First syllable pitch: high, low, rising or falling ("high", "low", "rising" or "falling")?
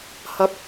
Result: rising